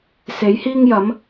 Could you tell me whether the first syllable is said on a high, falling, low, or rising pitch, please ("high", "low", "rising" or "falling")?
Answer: rising